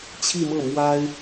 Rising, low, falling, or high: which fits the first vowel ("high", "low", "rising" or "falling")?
falling